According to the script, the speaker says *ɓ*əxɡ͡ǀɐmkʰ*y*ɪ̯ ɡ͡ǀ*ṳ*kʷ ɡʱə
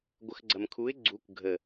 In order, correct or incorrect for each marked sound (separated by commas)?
incorrect, incorrect, incorrect